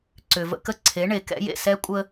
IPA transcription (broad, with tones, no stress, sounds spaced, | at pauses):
ǀ ʏ˨ v ə̰˦ k ə˦ ǀʰ e˨˦ ɳ e˨ k ɛ̰˦ j ḛ˦˨ s ɛ˦ kʷʼ ə˦